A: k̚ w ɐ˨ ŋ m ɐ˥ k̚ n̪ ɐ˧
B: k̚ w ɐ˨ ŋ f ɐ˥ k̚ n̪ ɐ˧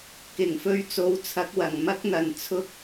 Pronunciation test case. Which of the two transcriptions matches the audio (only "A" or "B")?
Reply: A